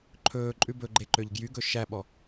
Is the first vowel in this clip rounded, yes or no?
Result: yes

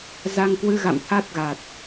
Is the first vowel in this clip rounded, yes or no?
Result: no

